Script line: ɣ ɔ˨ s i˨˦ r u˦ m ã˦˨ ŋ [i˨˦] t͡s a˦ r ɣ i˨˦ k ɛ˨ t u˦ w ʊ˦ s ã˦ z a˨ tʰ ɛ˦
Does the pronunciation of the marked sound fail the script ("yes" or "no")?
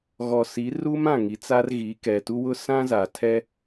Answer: no